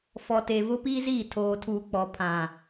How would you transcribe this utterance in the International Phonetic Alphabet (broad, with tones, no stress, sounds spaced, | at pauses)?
f ɔ˨ t e˨ v ʊ˦ p iː˦ z iː˦˨ tʰ oː˨ tʰ uː˨ k͡p ɔ˨ pʰ ã˨